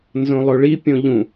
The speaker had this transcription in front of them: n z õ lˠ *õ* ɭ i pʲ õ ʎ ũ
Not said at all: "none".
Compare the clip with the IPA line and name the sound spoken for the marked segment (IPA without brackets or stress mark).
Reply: o